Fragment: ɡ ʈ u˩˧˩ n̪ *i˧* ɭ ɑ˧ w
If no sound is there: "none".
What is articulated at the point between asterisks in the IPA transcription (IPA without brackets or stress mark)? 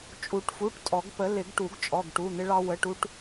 ɪ˧